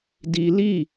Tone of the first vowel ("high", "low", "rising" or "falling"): high